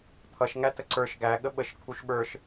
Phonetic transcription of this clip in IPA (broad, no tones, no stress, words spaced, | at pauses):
t̪ʰʌʃŋæ təǀə˞ʃ ɡæ ɠəɓəʃ kʰuʃɓə˞ʃ